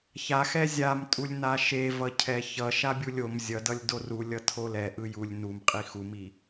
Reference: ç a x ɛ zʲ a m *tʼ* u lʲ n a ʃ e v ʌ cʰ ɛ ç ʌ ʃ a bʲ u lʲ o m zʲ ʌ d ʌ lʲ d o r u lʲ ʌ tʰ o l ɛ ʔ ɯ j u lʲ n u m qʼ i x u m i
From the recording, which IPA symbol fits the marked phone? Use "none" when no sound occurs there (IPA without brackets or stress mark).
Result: tʼ